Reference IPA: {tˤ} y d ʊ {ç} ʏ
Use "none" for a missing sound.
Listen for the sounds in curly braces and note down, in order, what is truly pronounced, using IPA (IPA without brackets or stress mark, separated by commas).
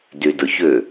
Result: d, ç